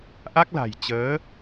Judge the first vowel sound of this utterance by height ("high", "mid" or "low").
low